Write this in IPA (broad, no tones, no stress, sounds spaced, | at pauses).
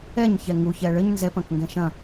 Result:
ɛ ɲ ç ɛ ŋ u ç ɛ ɭ ɘ ɲ n z ɛ p ɐ̃ k ŋ ɡ ɛ̃ ʃ ɐ̃